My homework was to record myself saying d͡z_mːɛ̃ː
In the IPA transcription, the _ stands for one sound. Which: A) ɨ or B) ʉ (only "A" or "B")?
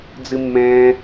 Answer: A